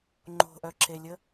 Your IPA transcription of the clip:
ŋ͡ǃ o̤ ʔ œ ǁ e lʲ ə

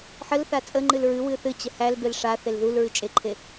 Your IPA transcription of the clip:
ħ ə l θ a t͡sʼ ə ŋ͡ǃ ɨ l ɹ ɨ w ɨ θ ɨ t͡ɕ ə h æ l b e l ʂ a θ e l ð u l ɹ ɨ t͡ʃʼ e ǃʰ e

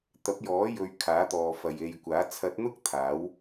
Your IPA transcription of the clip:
t̪ ɐ˨˥ p̚ j ɔː˨˥ j ɵ˨ ɥ kʰ aː˨˥ t̪ ɔː˨ f ɐ˨ j e˨ j kʷ aː˨˥ t͡sʰ ɐ˨˥ t̚ n̪ ʊ˥ k̚ t̪ʰ aː˨˥ w

